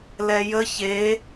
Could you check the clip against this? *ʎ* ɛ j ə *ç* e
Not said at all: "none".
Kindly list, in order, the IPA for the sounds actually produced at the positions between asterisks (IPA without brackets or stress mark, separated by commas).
l, ç